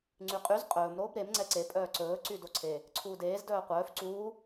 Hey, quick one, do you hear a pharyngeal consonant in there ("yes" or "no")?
no